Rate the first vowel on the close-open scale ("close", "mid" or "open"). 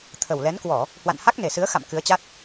mid